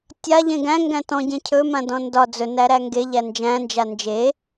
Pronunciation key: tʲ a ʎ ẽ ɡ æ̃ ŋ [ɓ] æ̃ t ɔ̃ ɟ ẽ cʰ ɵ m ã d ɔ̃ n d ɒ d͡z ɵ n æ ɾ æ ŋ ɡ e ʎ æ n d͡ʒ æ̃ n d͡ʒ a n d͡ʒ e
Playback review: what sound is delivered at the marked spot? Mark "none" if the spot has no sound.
ɡ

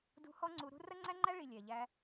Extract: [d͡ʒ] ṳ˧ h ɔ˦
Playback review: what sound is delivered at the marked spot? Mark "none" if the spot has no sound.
d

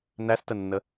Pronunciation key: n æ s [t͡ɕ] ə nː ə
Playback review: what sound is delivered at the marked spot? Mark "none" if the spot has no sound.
t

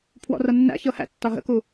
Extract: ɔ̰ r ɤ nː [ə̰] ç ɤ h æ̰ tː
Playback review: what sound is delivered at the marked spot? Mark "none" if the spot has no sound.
æ̰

